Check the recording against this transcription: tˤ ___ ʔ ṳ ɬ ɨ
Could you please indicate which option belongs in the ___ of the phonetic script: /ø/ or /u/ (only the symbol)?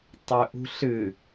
ø